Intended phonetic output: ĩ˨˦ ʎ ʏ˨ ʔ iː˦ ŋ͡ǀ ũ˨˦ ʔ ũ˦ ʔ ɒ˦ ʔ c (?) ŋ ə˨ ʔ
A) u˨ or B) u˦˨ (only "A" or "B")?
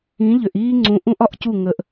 B